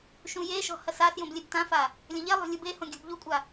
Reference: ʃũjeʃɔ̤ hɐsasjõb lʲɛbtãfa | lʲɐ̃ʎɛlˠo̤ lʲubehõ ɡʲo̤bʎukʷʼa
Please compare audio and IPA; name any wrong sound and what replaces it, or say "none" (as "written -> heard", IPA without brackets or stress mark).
none